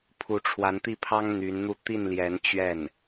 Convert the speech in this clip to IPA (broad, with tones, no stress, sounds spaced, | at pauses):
pʰ u˧˥ ʈ͡ʂʰ w a˧˥ n t̪ i˥˩ pʰ ɑ˥ ŋ n̪ y˧˥ n n̪ u˥˧ t̪ i˥˩ n l j ɛ˧˥ n t͡ɕ ɥ ɛ˥˩ n